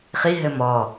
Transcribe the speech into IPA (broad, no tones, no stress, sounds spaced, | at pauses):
χ i ɦ ɘ m ɔ